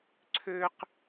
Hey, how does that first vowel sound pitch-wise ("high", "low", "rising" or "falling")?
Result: high